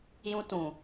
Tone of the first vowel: high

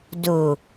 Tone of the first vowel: low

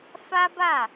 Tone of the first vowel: high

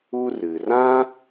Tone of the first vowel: high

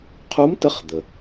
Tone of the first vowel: rising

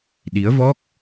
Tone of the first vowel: rising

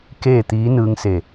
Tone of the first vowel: falling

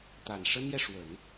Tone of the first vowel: low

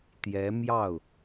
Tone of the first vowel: rising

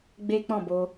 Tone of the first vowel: high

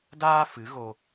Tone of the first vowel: high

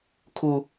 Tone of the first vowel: high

